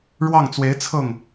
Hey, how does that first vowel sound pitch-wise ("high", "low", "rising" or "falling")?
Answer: falling